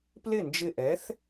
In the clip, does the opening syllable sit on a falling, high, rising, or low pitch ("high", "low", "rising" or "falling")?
falling